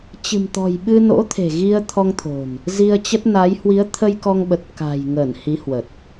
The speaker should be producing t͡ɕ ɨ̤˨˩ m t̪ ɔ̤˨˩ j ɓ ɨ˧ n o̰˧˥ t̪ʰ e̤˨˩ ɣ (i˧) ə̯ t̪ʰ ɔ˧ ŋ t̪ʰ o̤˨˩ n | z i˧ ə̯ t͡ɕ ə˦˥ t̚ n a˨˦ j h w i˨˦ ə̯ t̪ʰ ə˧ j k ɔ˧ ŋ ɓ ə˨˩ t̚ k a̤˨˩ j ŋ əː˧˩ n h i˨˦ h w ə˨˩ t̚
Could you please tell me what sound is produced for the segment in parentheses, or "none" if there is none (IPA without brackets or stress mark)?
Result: i˧